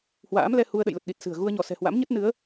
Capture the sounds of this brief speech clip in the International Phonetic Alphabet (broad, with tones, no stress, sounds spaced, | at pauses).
h w a̰ː˧˥ m l ɛ˧ h u˧ ə̯ ɗ ə̰˧˨ j l ə˨˩ t̚ ɗ i˨˩ t̚ s ɨ̤˨˩ ə̯ ɣ u˧ ə̯ ɲ ɔ˧˩ s ɛ̤˨˩ h w a̰˧˥ m ɲ ə˦˥ t̚ n ɨ˨˦ ə̯